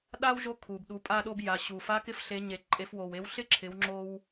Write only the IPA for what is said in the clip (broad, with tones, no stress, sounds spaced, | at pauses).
ɗ a˥ w ʒ o˧˥ kʰ u˩ b ɗ u˩˧ pʼ a˧ ɗ o˧ b j a˩ ɕ u˩ f a˧˥ k ɪ˧˥ f ɬ e˩˧ ɲ e˩ ǃʼ e˩˧ f w o˩ w e˧˥ w ɬ ɪ˥ ǁʰ ɪ˩˧ w ŋ͡ǁ o˧ w